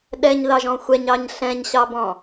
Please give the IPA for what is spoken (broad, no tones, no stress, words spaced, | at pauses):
ɗɛɲðɑʒɔ̃ xʷɛɲɑɲ ɬɛ̃ɲɕɑbɔ̃